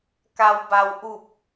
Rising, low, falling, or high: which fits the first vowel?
low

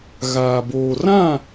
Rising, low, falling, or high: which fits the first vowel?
low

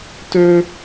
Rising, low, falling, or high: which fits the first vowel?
high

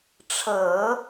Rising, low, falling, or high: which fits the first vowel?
low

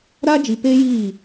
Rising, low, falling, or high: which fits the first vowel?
high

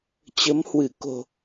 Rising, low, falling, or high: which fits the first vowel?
rising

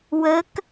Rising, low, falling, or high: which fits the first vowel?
rising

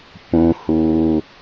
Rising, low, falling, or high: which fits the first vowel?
low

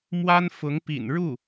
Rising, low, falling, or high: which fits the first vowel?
high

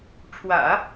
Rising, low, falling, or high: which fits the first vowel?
low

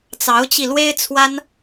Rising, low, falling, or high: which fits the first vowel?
rising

